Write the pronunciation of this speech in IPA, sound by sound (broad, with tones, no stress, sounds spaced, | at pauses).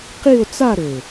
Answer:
q i˥˧ o̯ t͡s a˥˧ ɾ ø˨˩